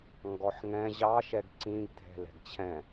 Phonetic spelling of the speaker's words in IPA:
ŋ ɡ ɔ ħ ŋ ɛ̃ ʑ ɑ ʃ ɛ ɡ ǀ ĩ ɡ dʱ ɛ̤ l ɛ̤ ɡ t͡ɕʰ ɛ̃

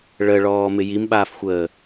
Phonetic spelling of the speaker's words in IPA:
ɭ ə ɭ ɔː m ɪ j i m ɓ aː f xʷ əː

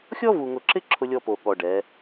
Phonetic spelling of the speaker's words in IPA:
xʲ ɔ˦ v u˨ ŋ ʊ˨ ǁ ɪ˦ ǁʰ ʊ˦ lʲ ɔ˦ p o˨ ɠ ɔ˨ ɖ ɛ˨˦

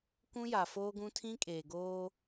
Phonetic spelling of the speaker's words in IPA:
k ũ˦ j a˨ f oː˦ ɡ ũ˦ tʰ ĩ˦ kʼ eː˨ ɡ oː˦

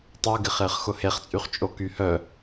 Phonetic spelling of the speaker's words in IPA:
tˤ œ ɡ ɪ χ ɪː χ x ʊ h e χ t͡sʼ y χ t͡ʃʼ o k y h œ

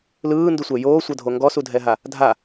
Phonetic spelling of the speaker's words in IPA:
l ɯː n d u sʷ ɛ j oː sʷ ɤ dʱ o ŋ ɡ ɔ s u dʱ ɛ ɦ a | dʱ a

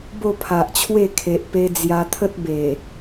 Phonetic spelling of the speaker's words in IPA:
b o˥˧ pʰ a˨ ʔ t͡ɕʰ w e˥˧ kʰ e˨ ʔ p e˧ d͡z j a˧ t̪ʰ ə˦ t̚ b e˨˩

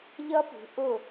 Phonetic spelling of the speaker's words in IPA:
ʎ ʌ˦˥ p ṳ˩˧ ʔ ʊ˧˩

